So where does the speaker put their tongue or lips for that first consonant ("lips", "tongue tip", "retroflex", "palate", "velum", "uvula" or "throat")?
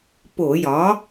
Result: lips